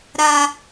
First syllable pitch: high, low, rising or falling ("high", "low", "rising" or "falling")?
high